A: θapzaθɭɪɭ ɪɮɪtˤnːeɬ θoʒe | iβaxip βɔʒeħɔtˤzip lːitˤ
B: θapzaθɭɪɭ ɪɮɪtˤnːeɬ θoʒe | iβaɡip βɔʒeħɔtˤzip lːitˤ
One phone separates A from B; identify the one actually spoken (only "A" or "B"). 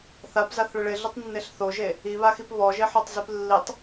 A